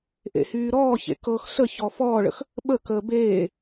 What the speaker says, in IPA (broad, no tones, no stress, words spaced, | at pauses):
ʔḛhyːɾɔːçḛ kɤx ɬəçɔ fɔːɭə̰x | ɓəkəː beː